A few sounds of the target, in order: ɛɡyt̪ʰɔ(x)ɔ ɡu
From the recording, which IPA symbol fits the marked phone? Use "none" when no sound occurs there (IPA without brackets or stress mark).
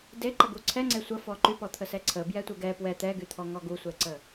ŋ